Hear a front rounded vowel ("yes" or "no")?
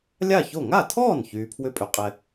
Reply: yes